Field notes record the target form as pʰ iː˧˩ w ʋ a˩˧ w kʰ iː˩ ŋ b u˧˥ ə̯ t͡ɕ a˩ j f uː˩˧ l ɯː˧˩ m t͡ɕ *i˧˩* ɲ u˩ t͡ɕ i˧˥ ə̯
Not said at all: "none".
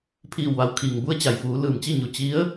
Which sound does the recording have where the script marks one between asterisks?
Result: i˥˨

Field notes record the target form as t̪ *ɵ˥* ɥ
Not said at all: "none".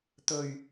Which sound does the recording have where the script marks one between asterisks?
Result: ɵ˨˩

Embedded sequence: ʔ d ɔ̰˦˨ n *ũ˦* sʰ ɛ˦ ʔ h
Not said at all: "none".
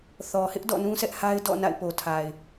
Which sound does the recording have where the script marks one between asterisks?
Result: ũ˦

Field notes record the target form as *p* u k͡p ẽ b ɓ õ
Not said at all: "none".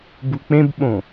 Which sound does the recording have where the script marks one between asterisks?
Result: b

